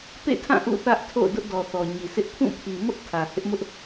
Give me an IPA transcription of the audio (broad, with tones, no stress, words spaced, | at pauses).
pḛ˦˨tʰã˦˨ ʔṵ˦˨θä˦ʔtʰo̰˦˨ʊ̯ dʊ˦ʔdɔ˨θɔ˨ ɲi˨sɪ˦ʔ pʰũ˦˨pʰi˨mʊ˦ʔ tʰä˨ hɪ˦ʔmʊ˦ʔ